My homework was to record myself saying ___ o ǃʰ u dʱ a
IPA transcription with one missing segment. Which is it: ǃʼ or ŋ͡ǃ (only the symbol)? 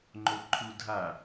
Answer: ŋ͡ǃ